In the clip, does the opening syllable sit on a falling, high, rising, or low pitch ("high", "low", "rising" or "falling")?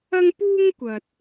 high